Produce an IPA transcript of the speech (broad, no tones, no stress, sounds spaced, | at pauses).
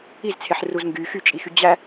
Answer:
i z t͡sʰ e ħ r u z ŋ ɡ y x y t͡ʃʼ i x y d͡ʑ æ